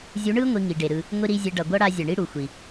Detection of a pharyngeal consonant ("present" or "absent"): absent